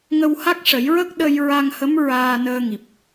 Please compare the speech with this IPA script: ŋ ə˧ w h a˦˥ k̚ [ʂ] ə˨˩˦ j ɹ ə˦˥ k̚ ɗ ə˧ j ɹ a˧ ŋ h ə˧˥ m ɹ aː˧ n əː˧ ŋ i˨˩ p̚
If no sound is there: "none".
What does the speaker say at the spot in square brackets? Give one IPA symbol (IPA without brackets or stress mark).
ʂ